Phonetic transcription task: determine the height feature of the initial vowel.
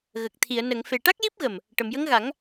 mid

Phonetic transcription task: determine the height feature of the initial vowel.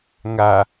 low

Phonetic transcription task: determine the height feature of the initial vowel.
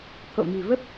mid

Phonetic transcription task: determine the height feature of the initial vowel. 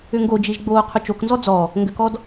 high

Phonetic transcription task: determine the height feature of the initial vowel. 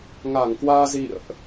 low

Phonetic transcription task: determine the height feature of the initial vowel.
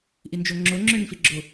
high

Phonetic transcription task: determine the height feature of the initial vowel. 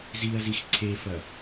high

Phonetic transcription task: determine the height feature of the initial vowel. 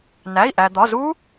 low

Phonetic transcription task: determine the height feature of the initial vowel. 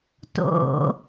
mid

